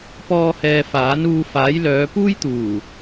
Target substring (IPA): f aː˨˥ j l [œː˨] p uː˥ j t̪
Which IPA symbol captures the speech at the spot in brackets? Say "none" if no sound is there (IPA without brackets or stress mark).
œː˨˧